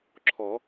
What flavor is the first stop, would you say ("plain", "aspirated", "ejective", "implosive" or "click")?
click